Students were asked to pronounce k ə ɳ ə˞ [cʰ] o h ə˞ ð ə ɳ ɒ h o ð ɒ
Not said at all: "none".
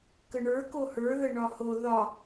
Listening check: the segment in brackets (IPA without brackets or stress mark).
k